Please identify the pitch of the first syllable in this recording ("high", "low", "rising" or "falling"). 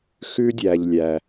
high